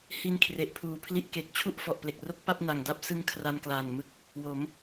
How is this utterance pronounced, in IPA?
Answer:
h i˦˥ n kʰ r e˨˩ ʔ pʰ uː˨˩ pʰ l i˦˥ ʔ k e˨˩ k̚ t͡ɕʰ u˥˩ ʔ f ɔ˨˩ ʔ p l e˨˩ k̚ r o˦˥ k̚ p a˥˩ p̚ n a˨˩ ŋ d a˦˥ p̚ s ɯ˦˥ ŋ kʰ r a˧ n k l aː˨˩ n m ɯ˦˥ k̚ | w o˩˦ m

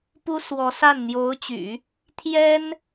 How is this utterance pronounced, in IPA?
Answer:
p u˥ s w ɔ˧˥ s a˥˩ n n̪ j o˧˥ ʊ̯ t͡ɕ y̰˨˩˦ | t̪ʰ j ɛ˥ n

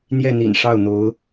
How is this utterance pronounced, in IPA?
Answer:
n̪ j ɛ˥˩ n̪ ḭ˨˩ n ʂ ɑ˥˩ ʊ̯ n̪ o˧˥ ʊ̯

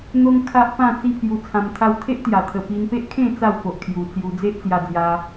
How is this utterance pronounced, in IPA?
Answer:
n̪ o˦ ŋ kʰ a˦ ʔ p ã˥˧ t͡s i˦ pʰ j u˧ t͡sʰ ã˧ m t̪ʰ a˧ w t̪ʰ e˦ ʔ t̪ j a˨˩ t̪ʰ ə˨˩ p i˧ n p e˦ ʔ kʰ ẽ˥˧ t͡s a˥˧ w p o˨ ʔ kʰ j u˨˩ t͡s j u˧ d͡z e˦ ʔ t͡s j a˧ d͡z j a˧

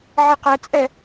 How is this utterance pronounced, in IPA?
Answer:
ʕ i q ɛ t͡sʼ ɛ

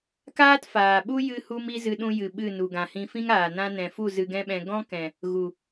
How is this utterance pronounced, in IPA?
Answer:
k aː˦ t f aː˨ ɓ u˦ j ɨ˧ h u˧ m i˧ z ɨ˧ ɗ ũ˧ j ɨ˨ ɓ ɨ˦˨ n u˨ ɡ ã˨ h ĩ˧ f ĩ˦ ŋ aː˨ n ã˧ n ɛ̃˨ f u˦˨ z ɨ˧ ɡ ɛ̃˦ ɓ ɛ̃˧ ɡ ɔ̃˦ k ɛ̃˨ | ɣ u˨

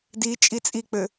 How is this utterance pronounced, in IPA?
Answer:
d i t͡ʃʼ i t͡sʼ i k͡p ɘ

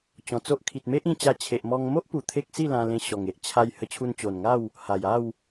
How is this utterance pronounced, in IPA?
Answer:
t͡ɕ ɔ̃˧ t͡s o˦ ʔ kʰ i˨ t̚ m e˦ ʔ ĩ˧ t͡ɕ a˧ t͡ɕʰ e˨ ʔ m ɔ˧ ŋ m o˦ ʔ p u˧ t̪ʰ e˦ k̚ s i˥˧ l ã˧ l ẽ˧ ɕ ɔ˨˩ ŋ e˨ ʔ t͡ɕʰ a˧ j h ə˧ t͡ɕʰ u˧ n t͡ɕ o˨˩ n ŋ a˥˧ w | h a˨˩ j a˥˧ w

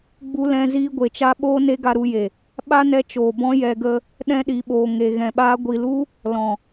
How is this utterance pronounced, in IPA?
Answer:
ɡ͡b u˧ l ɛ̃˧ z iː˧ ɡʷ e˨ t͡ʃ a˦ ɓ oː˦ n e˦ ɡ a˧ ɾ u˧ j e˨ | ɓ a˦ n ɛ˧ t͡ʃ oː˨ b ɔ̃˦ j ɛ˧ ɡ ə˦ | ɗ ɛ̃˦ ɗ i˨ ɓ oː˨ ŋ e˨ ɣ ɛ̃˨ ɓ aː˧ ɡʷ i˨ l u˦ | l ɔ̃˨

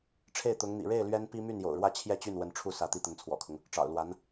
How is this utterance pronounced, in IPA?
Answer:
ʈ͡ʂʰ e˥˩ ɪ̯ t̪ ʊ˧˥ ŋ n̪ ḭ˨˩ ɻ e˥˩ ɪ̯ l ɥ ɛ˥ n p i˥ m y˥˩ n j o̰˨˩ ʊ̯ ɻ w ä˥˧ t͡ɕʰ j ɛ˥˧ t͡ɕ y˥˩ n w ə˧˥ n ʈ͡ʂʰ u˥˩ s ä˧˥ t̪ i˧˥ t̪ ə˧˥ n t͡sʰ w ɔ̰˨˩ kʰ ʊ˦ ŋ | ʈ͡ʂ ɑ̰˨˩ ʊ̯ l w a˧˥ n

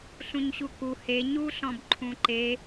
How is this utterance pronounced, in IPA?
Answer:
ɬ ũ ɲ ɕ u k u h e ɲ u ɬ ɔ̃ b ǃʰ ũ ǃ e

